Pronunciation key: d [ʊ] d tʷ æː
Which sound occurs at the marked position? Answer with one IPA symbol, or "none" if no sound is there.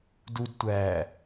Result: u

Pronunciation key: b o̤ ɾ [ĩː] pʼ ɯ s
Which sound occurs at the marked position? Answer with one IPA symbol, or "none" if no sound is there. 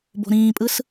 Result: ĩː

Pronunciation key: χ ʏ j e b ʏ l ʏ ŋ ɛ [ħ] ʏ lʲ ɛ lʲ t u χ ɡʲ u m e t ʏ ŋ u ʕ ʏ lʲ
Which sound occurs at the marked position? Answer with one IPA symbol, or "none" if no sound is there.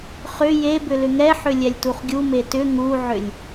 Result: ħ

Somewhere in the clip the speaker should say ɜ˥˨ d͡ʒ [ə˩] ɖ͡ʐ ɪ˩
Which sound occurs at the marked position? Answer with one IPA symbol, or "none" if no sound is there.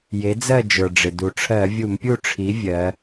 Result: ə˞˩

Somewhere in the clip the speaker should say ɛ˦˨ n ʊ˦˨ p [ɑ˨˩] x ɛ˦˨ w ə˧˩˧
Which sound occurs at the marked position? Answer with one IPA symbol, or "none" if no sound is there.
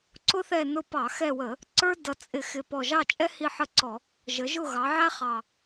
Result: ɑ˧˩˧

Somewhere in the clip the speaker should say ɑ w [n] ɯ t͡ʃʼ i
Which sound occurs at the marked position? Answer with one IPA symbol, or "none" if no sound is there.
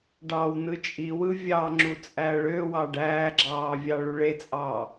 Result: n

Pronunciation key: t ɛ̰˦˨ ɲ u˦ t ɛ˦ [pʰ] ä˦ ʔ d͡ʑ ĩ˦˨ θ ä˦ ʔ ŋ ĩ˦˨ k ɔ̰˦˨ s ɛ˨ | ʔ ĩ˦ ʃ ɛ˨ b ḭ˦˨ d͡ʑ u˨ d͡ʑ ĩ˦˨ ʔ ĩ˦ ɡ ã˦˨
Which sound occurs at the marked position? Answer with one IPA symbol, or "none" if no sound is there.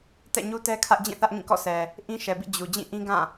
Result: kʰ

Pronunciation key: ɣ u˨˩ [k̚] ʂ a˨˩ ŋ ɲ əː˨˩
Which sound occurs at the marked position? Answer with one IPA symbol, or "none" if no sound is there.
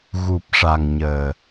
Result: p̚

